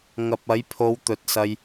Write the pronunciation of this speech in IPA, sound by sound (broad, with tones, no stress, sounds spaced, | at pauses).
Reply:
ŋ ɐ˨ p̚ ɐ˨˥ j pʰ o˨˧ w t̪ ɵ˨˥ t̚ s ɐ˧ j